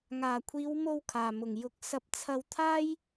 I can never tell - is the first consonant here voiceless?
no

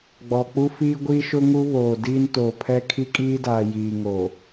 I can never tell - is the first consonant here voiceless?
no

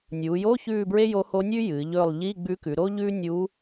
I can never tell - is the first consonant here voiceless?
no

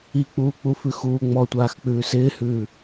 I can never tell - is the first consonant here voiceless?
yes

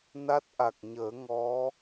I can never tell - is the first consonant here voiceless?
no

